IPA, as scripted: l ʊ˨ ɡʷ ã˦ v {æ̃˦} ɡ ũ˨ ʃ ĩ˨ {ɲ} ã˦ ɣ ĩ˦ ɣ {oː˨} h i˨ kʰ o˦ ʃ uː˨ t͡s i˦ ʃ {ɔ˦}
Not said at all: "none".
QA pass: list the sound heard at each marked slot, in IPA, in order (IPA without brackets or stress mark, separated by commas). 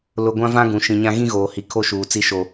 ã˦, ɲ, oː˨, o˦